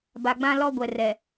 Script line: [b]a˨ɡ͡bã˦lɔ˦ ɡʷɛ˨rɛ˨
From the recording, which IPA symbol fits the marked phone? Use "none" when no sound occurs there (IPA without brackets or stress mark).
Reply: b